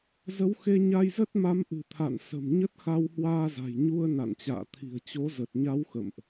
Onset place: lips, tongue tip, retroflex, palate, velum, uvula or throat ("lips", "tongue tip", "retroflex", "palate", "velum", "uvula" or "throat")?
tongue tip